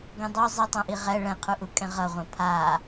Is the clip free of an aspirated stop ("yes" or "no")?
no